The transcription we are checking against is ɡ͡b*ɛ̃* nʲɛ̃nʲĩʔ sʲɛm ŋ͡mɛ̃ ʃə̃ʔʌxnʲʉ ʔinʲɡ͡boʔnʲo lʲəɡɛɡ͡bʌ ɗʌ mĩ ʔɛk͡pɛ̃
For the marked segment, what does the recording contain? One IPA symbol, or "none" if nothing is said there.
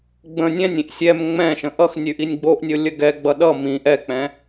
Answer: ə̃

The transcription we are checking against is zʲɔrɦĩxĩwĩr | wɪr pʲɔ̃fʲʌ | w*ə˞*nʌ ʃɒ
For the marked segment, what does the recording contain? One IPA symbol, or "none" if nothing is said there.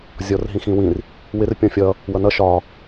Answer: ʌ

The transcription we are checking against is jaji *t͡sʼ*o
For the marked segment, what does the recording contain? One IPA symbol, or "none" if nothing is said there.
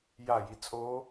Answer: t͡sʼ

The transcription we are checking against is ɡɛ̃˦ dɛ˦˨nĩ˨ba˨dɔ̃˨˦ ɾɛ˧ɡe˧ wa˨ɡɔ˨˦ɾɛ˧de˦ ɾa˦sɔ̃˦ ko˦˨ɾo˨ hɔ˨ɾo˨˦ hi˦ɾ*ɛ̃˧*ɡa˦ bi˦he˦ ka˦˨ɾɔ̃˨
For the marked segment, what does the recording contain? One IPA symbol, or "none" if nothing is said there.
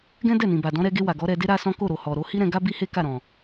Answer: ɛ̃˧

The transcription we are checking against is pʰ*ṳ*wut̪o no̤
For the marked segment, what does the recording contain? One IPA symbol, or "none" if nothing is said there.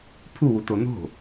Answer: u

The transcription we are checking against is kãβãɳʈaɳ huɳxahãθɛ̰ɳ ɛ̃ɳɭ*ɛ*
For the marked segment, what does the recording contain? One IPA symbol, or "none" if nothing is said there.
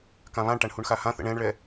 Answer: ɛ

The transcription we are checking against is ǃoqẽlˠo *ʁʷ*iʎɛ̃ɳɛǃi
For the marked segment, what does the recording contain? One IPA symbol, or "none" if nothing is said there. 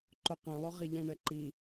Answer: ʁ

